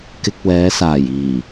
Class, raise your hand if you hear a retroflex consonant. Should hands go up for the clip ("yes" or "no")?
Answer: no